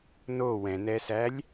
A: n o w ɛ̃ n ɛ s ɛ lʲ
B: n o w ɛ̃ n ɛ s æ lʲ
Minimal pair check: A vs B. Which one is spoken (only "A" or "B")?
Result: B